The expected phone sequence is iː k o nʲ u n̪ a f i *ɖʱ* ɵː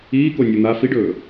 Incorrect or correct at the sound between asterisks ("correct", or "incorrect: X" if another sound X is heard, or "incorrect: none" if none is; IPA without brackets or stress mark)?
incorrect: ɖ